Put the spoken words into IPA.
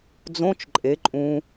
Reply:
d͡z õ t͡ʃ ǃʼ e ǃʼ ũ

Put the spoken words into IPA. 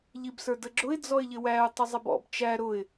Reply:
ʎ i b s ə˞ d ə ɡ͡ǁ ʊ ɪ̯ d͡z ɔ ɪ̯ ʎ ɪ w æ ʊ̯ tˤ ɪ zˤ ɪ b ɔ̰ b t͡ʃ æ ɾ ʊ ɪ̯

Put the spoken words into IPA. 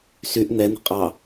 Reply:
s y ʔ n̪ ɛ n̪ ə̤ qʼ ɑ

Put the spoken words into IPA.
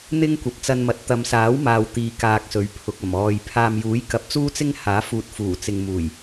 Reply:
n̪ ɪ˥ ŋ kʷ ɐ˨ p̚ t͡s ɐ˧ n m ɐ˨˥ t̚ t̪ ɐ˨˧ m s aː˨˥ w m aː˨ w t̪ iː˨ k aː˨ k̚ s ɵ˨˥ ɥ pʰ ʊ˨ k̚ ɐ˨˩ m ɔː˨ j pʰ aː˨ m j uː˨˥ j k ɐ˨˥ p̚ t͡s uː˥ t͡s ɪ˥ ŋ h aː˨˥ f uː˨ t̚ f uː˨˩ t͡s ɪ˨ ŋ m uː˨˩ j

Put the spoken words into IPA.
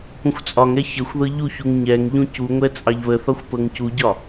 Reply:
p ũ xʷ t͡sʼ ɒ ŋ ɛ ç ə xʷ ð ɤ ʎ u ç u ŋ ɲ ɛ ŋ ʎ ũ c u ŋʷ ɛ t͡sʼ ɑ ʎ β ə θ ɒ xʷ p ɤ ŋ c u ɟ ɒ

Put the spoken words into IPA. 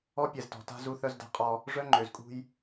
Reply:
ɔ˦ pʲ ɛ˨ z t ɔ̤˨ t a̤˦ z u˦ θ œ˦ z d a̤˦ qʼ ɔ˦ | ʐ œ˦ ŋ͡ǃ ø˨ z kʼ ṳ˦ j

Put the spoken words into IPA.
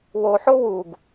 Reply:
w o ħ o w u ɡ

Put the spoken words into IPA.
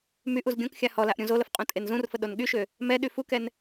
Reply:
m y ʔ u z ɡʲ õ k xʲ a h ɔ l a ʔ ɾʲ ũ z o l ə f qʼ ũ tʼ e n z ũ r f ə ɗ o n ɠ y ʃ ø | m ɛ ɗ y f u k ɛ n

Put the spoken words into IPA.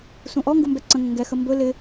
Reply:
s ũ ʔ ɔ ŋ ɡ u m b ɛ ǀ ə̃ ŋ ə̃ ŋ ɡ ɛ x ə m b ɵ l ɪ

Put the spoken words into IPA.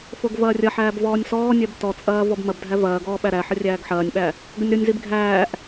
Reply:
f o ɡ v ɐː rʲ ɐ ħ æː b v ɔː nʲ s ɔː nʲ ɛ b t ɔ t͡sʼ ɐː v ɔ b m ɐ b dʱ æ v ɐː ɡ ɔː ɓ æ ɾ æ ħ ə rʲ æː ɡ ħ ɐː nʲ ɓ æ | ɡ ə nʲ ɾ o nʲ z i b ɡʱ æː ʔ

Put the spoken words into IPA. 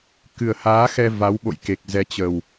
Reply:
k ɨ˨˩ ə̯ h aː˨˦ x ɛ˧ v a˨˦ w ɓ o̰˧˨ j k e˨˩ k̚ z ɛ˨˦ t͡ɕ ə˨˩ w

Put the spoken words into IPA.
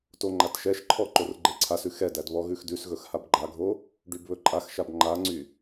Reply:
t o ŋ͡ǃ a t ʃ ɛ ʃ ǃʰ ɔ ǃ o r ɡ͡ǃ e ǀʰ a s ʉ x ɛ d æ d β ɔ ɣ ʉ x d ʉ s ɣ ɵ x h a b ɡ͡ǃ a ɡʱ o | ɖ y b β ɵ ǃʼ a x ʃ a b ŋ͡ǃ a ŋ͡ǀ y

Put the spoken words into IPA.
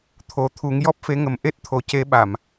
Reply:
t̪ʰ o˨˩˦ t̪ʰ u˨˩˦ ŋ j ɔ˦˥ p̚ f e˧˥ ŋ ə˨˩˦ m ʔ e˦˥ t̚ t̪ʰ o˨˩ c e˧ ɓ a˨˩˨ m

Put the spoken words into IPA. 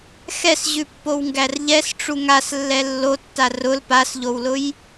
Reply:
x ɛ s ʑ ʉ pː o w ŋ ɡ æ r ʎ ɛ s ʈ͡ʂ u ŋ a s lː ɛ lː o tː a r ʊ l p a s ʎ o w l ʊ j

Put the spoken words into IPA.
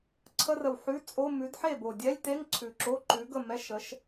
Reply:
ǀʰ ə˧˥˧ r ə˨˩ w ħ ʉ˧˥˧ t͡sʼ o˧˥˧ m ʉ˨˥ d ħ e˥˩ b o˨˩ dʲ ɛ˧˥˧ lʲ t e˧˥˧ ŋ ǀʰ ʉ˨˩ ǁ o˧˥˧ ǃ ʉ˨˥ ɡ ə˥˩ m ɛ˧˥˧ ʃ ə˨˥ ʃ

